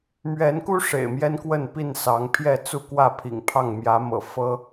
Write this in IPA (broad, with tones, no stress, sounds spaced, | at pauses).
m ɥ ɛ˨˦ n k u˦ ʂ ḛ˨˩ ɪ̯ m j ɛ˦ n k w ə˥˨ n p i˥˨ n s ɑ˨˦ ŋ pʰ j ɛ˥˨ t͡s u˥˨ k w ä˥˨ pʰ ḭ˨˩ ŋ pʰ ɑ˥˨ ŋ m j ä˨˦ m ɤ̰˨˩ f ɤ˦